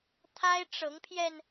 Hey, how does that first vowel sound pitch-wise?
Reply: high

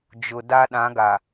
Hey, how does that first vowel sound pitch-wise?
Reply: low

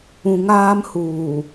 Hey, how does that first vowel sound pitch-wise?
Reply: low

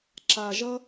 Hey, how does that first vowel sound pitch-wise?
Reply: low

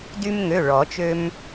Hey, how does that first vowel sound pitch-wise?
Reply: high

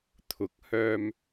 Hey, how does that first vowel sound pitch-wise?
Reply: rising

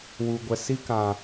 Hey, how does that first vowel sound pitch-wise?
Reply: low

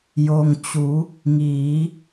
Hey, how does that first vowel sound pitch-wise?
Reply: low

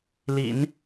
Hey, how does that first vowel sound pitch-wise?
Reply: low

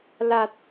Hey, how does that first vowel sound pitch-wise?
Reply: low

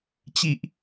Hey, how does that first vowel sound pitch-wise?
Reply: low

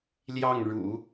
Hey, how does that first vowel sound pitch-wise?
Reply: falling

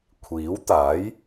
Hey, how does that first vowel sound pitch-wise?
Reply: rising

